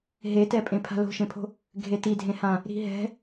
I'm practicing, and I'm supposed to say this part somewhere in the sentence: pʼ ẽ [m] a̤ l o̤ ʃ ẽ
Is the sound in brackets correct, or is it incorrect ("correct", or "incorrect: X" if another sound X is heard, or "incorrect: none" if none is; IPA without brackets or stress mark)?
incorrect: pʰ